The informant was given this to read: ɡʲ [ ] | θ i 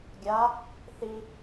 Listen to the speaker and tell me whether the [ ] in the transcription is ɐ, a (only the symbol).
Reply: a